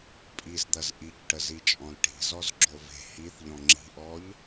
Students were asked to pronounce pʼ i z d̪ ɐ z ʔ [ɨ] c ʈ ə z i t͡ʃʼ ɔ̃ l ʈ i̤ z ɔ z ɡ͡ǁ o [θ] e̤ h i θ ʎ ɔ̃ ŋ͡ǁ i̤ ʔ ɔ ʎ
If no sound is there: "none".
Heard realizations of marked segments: i, v

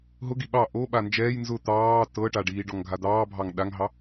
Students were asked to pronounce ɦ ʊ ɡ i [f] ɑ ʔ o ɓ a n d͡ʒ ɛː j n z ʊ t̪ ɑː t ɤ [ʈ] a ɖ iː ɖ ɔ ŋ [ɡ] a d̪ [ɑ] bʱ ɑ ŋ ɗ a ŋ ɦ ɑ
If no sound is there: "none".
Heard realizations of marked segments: ɓ, ʈ, ɡʱ, ɑː

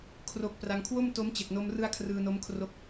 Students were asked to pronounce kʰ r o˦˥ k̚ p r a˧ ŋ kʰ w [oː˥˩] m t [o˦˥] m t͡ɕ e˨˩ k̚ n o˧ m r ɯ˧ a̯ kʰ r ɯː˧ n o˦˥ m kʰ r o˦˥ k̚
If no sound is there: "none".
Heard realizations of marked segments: o˥˩, o˦˥

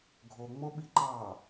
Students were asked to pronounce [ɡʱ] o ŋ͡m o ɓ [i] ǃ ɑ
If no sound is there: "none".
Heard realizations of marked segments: ɡʱ, i

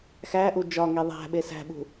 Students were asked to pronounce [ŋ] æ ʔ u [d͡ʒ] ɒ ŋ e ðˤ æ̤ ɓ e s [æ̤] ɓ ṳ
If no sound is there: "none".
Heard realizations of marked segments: x, d͡ʒ, æ̤

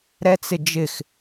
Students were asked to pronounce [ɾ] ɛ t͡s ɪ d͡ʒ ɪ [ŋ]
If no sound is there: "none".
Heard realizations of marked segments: ɾ, x

